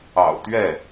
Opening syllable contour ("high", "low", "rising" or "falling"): low